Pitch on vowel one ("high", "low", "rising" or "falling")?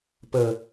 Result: low